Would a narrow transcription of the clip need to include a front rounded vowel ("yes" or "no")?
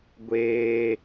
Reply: no